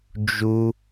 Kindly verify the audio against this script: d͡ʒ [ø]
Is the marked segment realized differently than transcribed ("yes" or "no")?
yes